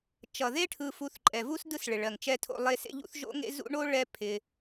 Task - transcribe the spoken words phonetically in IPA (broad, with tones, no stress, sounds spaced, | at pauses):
t͡ʃ ʌ˩ ð e˥ ʈʰ ɯ˨ f u˨ θ ǃʼ ɛ˩ v u˥ s d ɯ˦ s ɭ ɪ˩ ɭ ɜ˩ ŋ t͡ʃ ɛ˦ tʰ o̰˦ lˠ e˦ s ḛ˥ ʎ ṵ˥ θ ʒ o̰˥ ŋ ḛ˥ z ṵ˦ ɳ o˥ ɭ ɛ˦ pʰ ɪ˨